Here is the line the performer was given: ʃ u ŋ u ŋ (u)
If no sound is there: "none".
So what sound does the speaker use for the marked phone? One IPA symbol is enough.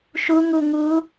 uː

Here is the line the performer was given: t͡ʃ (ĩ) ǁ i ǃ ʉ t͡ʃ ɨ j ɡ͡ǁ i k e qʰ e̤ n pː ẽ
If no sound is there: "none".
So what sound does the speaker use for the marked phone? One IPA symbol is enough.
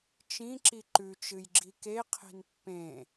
ĩ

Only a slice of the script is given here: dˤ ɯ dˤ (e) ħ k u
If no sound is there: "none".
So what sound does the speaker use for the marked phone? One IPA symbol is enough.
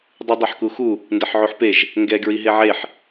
e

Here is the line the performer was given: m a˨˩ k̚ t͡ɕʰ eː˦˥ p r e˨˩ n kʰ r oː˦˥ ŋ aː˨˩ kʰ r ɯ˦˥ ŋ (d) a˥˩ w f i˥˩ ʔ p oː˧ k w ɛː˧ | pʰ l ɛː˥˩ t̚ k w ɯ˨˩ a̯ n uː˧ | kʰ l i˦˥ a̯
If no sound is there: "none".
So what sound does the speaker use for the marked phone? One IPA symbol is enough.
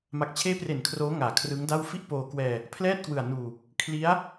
d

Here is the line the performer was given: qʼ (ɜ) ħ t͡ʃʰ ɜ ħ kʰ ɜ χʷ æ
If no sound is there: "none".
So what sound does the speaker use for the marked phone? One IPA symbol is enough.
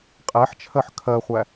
æ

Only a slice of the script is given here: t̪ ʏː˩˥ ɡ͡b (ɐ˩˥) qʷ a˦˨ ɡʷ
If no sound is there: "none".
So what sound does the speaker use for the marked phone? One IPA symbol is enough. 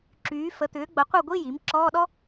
ɐ˩˥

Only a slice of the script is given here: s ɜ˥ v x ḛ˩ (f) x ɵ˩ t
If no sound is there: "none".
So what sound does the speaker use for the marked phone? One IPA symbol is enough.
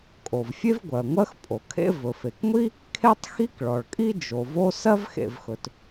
v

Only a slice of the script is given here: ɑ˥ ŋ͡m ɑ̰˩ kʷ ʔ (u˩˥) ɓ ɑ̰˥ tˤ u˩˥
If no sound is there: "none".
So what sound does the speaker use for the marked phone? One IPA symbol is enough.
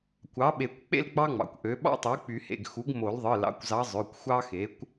ø˩˥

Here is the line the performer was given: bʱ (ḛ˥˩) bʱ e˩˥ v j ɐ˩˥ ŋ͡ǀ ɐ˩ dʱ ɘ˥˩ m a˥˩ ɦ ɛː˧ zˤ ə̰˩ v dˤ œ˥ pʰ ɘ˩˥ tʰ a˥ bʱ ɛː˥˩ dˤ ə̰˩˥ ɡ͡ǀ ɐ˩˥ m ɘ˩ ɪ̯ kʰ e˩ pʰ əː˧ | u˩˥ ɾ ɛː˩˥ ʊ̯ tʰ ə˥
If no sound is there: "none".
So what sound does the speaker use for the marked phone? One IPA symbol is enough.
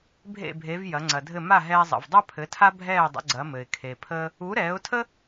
ḛ˥˩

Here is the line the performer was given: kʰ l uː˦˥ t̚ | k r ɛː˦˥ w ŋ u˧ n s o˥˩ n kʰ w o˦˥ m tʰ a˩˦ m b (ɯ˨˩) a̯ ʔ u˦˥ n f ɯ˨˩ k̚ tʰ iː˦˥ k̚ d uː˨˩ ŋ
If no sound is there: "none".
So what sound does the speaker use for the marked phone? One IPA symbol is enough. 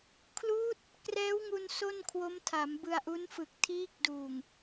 ɯ˧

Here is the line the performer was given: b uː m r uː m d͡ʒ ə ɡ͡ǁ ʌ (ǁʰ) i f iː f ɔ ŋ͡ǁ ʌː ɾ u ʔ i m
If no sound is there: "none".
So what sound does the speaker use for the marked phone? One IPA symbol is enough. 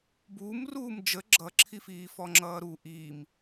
ǁʰ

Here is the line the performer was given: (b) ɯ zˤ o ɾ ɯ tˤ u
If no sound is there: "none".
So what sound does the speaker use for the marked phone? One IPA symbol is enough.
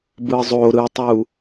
b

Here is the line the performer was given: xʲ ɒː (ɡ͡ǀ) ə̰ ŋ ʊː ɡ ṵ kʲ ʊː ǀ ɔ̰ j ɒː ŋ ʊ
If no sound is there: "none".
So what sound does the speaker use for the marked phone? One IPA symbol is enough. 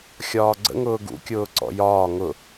ɡ͡ǀ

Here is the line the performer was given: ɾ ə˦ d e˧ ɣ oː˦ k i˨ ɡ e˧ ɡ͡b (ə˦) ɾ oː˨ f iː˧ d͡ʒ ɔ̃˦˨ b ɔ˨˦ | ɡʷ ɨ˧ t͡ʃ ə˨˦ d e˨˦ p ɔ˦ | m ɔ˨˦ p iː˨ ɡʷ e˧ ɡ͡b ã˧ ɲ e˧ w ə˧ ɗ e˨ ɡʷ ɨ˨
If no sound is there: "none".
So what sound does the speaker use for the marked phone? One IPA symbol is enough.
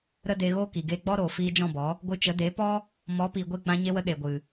ɔ˦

